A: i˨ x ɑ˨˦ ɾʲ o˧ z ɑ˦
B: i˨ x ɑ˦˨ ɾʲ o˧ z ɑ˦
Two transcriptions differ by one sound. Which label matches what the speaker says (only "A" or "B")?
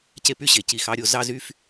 A